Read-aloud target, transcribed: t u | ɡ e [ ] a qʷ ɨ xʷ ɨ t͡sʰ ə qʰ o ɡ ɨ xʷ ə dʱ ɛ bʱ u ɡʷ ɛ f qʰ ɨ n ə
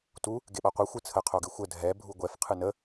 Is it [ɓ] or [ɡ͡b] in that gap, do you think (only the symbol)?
ɓ